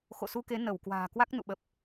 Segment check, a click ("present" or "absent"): absent